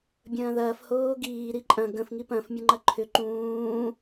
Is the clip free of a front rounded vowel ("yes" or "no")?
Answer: no